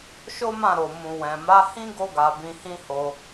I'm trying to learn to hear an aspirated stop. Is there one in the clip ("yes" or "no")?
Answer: no